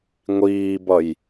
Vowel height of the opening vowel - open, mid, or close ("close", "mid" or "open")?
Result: close